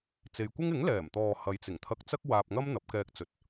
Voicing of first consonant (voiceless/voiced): voiceless